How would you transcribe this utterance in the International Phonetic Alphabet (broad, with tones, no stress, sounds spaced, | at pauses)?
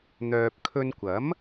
n̪ œː˨ p̚ kʰ ɵ˧ n kʷ ɐ˨˥ m